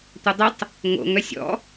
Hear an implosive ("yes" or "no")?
no